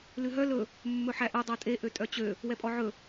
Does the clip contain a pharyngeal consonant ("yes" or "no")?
yes